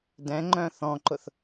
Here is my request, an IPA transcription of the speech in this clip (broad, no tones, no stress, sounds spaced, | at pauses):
d ɛ̃ ŋ͡ǃ œ̃ θ ɔ̃ ǃ ʊ θ